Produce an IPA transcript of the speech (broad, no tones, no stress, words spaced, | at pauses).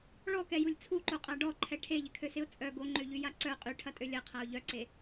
ɭɔkɛjulʲ t͡sʰuǃoqʼa ɖɔǃʰɛ ʈʰeʎɪkʰøsɪʊ̯ t͡sʼœ ɡoŋ͡ǃøʎyja ǀœ qʼyʈʰɐtʼø lʲɐqʰaʊ̯ ʎœǀe